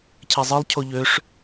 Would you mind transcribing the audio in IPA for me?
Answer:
cʰ ɛ zˤ ɯ lˠ cʰ o ʎ ø ʂ

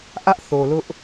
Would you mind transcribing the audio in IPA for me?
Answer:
ʔ ä˦ ʔ θ o˨ l ʊ˦ ʔ

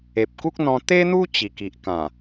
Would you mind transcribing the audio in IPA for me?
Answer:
e˨ p̚ k u˦ k̚ n̪ ɔ̃˧ t̪ e˦ n̪ u˦ t͡ɕ i˨˩ k i˨ ʔ k ã˨˩

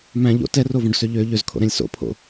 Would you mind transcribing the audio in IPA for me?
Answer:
m æ̃ ʎ o̰ t ɛ r o v õ ɖ s ø ʎ ø ʎ ø z kʰ o̰ ɾ ɛ̃ lʲ s o̰ pʰ o̰

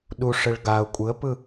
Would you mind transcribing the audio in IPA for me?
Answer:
ɗ u ʂ ɘ ɭ ɡ a ʊ̯ kʷʼ ɯ ə̯ p ɯ

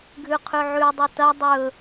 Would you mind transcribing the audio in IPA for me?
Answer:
ɡʱ ʉ qʰ ʉ ʕ ʉ dˤ u t ɐ dˤ ɵ

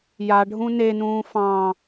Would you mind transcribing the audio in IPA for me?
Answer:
j a ɖʱ ũ n e n ũː f ɑ̃

